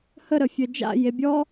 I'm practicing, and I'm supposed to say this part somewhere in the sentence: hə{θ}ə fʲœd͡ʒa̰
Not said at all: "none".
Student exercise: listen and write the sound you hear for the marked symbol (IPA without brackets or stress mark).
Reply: ɾ